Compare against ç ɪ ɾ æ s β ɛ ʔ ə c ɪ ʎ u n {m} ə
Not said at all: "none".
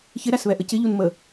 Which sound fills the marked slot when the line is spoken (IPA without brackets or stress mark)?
m